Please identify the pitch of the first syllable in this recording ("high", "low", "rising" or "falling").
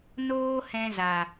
high